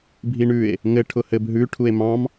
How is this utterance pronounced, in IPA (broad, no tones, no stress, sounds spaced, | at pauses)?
bʱ i ɳ ʉ e̯ | ŋ ɘ ʈʰ ʊ h ɘ b ɦ ʉ ʈʰ u e̯ m ɑ̃ m